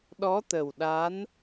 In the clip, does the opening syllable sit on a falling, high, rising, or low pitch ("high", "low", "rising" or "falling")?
rising